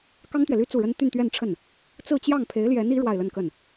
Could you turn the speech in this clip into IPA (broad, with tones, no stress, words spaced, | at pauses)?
kɑ˥ŋt̪ɥɛ˨ly˥ t͡su˥˩ɻə˥n t̪y˥˧nt̪ɥɛ˥˧nʈ͡ʂʰə˥˩n | t͡sɹ̩˥˧t͡ɕjɑ˥˩ŋ pʰe˧˥ɪ̯ljɛ˧˥ni˧˥ ɻwa˥˧ɪ̯lə˥˧nkə˥˩n